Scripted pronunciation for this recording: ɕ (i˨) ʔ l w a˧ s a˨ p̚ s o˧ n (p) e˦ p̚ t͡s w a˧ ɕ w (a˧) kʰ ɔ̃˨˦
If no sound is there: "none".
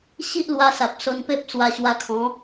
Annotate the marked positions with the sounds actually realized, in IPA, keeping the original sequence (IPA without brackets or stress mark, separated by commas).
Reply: i˦, p, a˧